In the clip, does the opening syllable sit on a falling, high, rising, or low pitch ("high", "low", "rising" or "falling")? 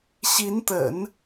rising